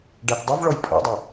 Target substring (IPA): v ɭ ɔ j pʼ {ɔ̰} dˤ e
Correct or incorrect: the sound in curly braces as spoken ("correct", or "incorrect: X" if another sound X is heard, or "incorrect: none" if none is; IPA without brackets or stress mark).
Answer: correct